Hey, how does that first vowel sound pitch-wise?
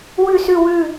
falling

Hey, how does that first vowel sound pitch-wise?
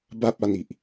high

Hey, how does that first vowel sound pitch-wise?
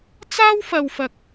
high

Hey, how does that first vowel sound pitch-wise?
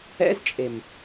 high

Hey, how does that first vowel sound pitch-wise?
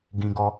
high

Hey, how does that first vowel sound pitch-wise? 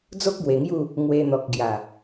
high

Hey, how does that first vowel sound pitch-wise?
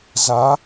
rising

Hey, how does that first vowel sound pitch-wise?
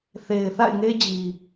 low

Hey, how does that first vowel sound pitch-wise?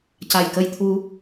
low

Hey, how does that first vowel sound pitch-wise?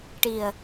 low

